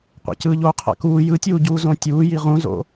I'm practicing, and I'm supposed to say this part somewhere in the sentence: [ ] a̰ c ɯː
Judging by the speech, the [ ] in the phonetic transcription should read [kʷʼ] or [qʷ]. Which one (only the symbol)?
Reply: qʷ